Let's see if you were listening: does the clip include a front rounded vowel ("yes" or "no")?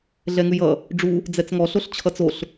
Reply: no